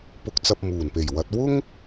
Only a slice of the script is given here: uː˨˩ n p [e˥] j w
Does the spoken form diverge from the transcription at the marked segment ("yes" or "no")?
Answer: yes